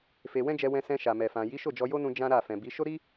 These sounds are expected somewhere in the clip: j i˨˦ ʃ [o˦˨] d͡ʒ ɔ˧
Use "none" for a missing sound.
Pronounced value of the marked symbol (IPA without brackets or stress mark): o˦˨